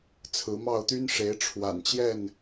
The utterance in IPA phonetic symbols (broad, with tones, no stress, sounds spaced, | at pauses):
t͡sʰ ɹ̩˨˦ m ɑ˥˨ ʊ̯ t̪ y˦ n ʂ e˨˦ ɪ̯ ʈ͡ʂʰ w a̰˨˩ n t͡ɕ j ɛ˥˨ n